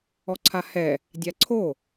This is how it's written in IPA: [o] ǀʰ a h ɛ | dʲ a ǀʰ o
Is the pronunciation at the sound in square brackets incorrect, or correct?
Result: incorrect